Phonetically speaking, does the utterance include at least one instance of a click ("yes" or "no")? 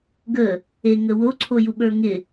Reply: yes